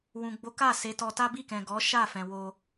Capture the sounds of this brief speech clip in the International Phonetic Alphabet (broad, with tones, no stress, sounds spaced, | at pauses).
w ũ˨ ɡ͡b o˨˦ k a˦˨ s e˨˦ t ɔ˧ t a˦ b i˦˨ k ɛ̃˨ ɡ ɔ˨˦ ʃ a˦˨ f ɛ̃˨ w o˧